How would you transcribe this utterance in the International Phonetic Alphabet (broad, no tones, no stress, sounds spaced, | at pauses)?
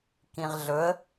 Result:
k ĩ ʁ ɮ ɵ ə̯